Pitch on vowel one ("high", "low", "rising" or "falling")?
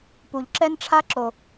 low